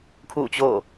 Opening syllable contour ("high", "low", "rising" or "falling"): falling